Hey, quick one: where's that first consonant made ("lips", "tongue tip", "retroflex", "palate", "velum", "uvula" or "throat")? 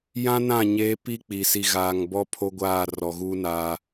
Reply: palate